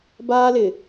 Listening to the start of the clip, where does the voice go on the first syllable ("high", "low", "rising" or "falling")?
high